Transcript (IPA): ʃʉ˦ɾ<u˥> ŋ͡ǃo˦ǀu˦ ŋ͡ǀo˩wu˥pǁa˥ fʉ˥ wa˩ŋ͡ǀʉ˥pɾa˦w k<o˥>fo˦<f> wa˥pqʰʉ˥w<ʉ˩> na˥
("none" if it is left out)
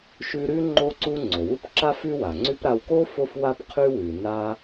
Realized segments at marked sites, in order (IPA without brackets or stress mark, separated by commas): ʉ˥, o˥, f, ʉ˨